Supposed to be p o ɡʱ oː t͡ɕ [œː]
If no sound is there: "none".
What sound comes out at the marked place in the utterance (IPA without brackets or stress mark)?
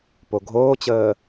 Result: əː